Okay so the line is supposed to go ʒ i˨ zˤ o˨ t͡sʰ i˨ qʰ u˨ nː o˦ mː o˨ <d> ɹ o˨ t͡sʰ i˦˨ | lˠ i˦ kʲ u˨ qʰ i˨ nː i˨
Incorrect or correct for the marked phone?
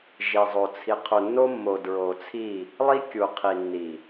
correct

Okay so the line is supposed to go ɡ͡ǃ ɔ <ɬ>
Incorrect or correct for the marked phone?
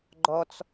incorrect: t͡s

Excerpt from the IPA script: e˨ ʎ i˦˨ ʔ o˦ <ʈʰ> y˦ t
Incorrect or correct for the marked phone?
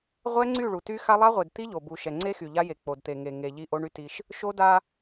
incorrect: ɳ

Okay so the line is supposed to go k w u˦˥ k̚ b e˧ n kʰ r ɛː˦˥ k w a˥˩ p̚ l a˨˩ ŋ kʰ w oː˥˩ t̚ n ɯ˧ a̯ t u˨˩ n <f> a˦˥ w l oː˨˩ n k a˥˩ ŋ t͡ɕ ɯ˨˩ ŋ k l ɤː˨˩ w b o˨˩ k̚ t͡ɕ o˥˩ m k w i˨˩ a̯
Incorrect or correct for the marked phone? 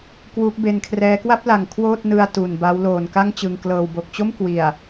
incorrect: b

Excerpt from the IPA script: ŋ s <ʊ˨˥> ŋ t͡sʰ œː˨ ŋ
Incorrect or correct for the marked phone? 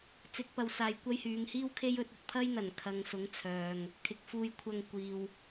correct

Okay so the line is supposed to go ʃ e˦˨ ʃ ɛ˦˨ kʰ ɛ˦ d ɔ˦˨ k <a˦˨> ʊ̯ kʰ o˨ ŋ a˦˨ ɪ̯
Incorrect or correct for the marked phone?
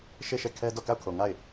correct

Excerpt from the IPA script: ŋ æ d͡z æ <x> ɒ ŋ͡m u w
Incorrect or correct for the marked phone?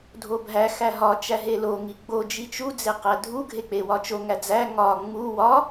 incorrect: ŋ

